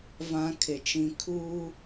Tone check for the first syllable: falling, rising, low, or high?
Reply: high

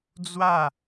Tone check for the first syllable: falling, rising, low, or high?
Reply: falling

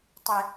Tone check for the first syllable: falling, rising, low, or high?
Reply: high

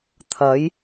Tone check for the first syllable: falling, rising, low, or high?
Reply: rising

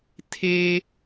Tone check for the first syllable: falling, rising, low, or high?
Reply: high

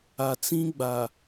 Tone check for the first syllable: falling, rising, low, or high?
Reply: low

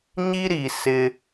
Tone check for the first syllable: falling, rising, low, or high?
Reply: high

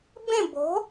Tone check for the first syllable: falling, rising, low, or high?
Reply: falling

